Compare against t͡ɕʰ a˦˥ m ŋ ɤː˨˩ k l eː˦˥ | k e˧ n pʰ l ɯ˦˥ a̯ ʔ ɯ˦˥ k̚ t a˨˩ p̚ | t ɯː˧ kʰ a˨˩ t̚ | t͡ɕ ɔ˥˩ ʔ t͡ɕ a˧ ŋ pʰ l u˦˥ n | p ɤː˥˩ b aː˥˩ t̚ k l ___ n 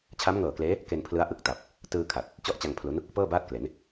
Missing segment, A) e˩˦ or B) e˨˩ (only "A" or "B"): A